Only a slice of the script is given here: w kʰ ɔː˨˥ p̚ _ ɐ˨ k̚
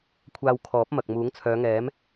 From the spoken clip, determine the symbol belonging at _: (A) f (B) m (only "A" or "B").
B